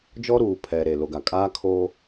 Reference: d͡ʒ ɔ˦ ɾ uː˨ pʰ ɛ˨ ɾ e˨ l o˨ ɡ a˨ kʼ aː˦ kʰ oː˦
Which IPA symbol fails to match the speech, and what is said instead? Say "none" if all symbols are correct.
none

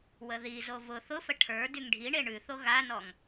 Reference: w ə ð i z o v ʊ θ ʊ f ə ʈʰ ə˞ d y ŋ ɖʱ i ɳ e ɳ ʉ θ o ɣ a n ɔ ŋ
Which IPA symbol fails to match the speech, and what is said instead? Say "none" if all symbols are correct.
none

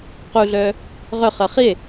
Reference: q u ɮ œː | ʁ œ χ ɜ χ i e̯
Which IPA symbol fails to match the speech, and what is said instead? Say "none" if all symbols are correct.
none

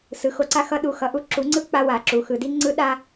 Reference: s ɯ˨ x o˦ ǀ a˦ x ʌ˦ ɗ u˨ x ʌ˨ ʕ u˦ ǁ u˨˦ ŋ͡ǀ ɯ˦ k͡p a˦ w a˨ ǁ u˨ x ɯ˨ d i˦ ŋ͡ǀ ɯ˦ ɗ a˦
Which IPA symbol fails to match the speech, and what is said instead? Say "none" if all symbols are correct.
ʕ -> ʔ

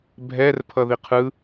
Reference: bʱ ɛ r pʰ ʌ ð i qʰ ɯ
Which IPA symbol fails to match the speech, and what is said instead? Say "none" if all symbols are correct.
none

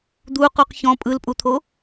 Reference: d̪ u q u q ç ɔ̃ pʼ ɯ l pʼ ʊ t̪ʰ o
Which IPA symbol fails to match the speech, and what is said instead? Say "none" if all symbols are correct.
ʊ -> u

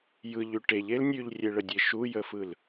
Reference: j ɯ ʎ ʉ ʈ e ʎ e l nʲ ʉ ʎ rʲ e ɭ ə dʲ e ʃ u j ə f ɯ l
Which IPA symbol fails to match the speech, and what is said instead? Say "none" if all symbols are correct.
none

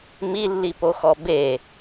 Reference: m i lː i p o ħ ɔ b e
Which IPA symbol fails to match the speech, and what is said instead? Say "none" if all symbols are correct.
ħ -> x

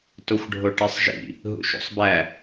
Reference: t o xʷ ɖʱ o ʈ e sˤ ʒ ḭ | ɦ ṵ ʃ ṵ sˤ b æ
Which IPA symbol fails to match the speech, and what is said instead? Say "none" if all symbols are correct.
none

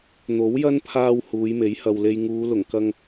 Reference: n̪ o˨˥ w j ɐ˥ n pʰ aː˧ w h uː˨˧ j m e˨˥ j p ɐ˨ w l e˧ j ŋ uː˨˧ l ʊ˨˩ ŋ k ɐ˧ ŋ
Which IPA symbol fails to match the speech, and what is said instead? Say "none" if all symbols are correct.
p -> h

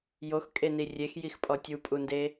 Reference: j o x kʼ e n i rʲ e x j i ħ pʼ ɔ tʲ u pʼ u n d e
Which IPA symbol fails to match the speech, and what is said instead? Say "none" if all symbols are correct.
ħ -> x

